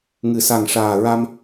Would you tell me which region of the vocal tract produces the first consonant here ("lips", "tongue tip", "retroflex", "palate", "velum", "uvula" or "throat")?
velum